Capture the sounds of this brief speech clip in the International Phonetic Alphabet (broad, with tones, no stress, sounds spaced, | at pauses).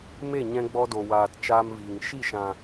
m e˦˨ ɲ ɛ̃˧ ɡ͡b ɔ˧ d o˨ w aː˨ t t͡ʃ aː˦ m v iː˨ ŋ ʃ i˦˨ ʃ ã˨